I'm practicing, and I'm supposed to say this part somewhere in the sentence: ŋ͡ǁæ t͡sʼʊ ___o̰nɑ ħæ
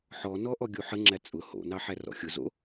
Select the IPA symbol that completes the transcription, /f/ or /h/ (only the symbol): h